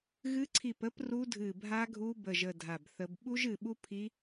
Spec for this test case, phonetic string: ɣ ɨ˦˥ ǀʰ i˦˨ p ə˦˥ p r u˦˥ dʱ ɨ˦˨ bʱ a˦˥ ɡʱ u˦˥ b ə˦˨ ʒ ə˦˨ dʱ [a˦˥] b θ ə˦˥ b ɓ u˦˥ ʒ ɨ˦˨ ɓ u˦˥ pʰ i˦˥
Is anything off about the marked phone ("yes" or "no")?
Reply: yes